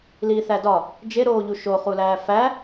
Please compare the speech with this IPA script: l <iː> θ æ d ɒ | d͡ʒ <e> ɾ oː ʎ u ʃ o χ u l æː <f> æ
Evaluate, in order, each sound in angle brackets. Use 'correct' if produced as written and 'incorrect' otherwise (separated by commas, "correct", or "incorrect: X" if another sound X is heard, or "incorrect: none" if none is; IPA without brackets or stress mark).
correct, correct, correct